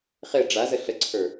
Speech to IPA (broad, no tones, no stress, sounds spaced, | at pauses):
χ e ɖ͡ʐ a z ə ɬ ə ǀʰ ə˞